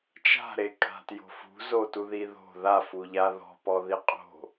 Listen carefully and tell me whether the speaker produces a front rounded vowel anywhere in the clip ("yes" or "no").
no